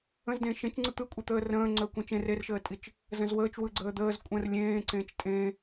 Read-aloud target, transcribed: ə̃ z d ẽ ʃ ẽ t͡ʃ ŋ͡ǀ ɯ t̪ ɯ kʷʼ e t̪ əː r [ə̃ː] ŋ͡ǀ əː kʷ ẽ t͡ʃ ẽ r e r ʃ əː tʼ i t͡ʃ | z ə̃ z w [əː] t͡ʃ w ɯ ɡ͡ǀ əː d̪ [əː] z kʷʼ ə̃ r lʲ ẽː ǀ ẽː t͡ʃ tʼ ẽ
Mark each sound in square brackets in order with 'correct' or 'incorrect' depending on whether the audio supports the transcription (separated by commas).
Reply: correct, correct, correct